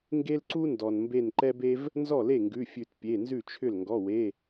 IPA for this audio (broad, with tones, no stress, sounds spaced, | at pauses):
ŋ ɡ e˦ l ǀ u˦ n d ɔ˩ n m b e˧˩ n ǃ ɛ˦ b e˦ v | n z ɔ˥˩ l e˥˩ ŋ ɡ ʉ˩˧˩ fʲ ʉ˨˩˦ t pʲ e˩˧˩ n z ʉ˥˩ t͡ʃʰ ʏ˥˩ l ŋ ɡ ɔ˩˧˩ w e˩˧˩